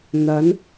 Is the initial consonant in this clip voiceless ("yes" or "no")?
no